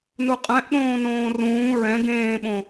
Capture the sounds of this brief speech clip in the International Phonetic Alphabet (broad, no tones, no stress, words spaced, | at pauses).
nuqʼɛ̃ʔɗõː nõːrũː ɹɛ̃ ɡẽːɓõ